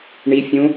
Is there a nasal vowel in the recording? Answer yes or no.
yes